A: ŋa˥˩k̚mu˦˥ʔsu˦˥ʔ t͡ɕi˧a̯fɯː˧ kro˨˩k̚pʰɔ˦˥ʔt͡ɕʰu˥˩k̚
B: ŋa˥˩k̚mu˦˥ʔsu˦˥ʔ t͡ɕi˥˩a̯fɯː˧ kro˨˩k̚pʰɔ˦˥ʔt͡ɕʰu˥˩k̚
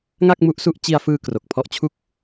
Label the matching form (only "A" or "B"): A